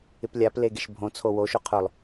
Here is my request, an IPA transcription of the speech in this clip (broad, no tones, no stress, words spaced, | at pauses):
ɪplʲaple ɡeʃbʱõt͡sʰo woʃo qʰʊlˠ